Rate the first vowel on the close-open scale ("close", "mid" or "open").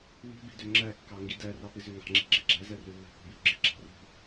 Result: close